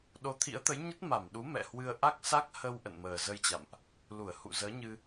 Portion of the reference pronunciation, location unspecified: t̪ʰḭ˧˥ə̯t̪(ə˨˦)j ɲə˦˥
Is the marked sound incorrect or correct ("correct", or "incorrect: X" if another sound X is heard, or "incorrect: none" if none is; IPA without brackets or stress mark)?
correct